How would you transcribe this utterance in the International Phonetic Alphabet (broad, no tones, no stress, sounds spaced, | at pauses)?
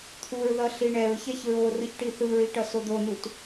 t̪ʰ u ɹ ð ʌ ɬ i ɳ ɛ ɹ ç ɛ ç ɹ o r ɯ ç ʈ i θ ɯ ɹ i ʈ ʌ s o d̪ o n u t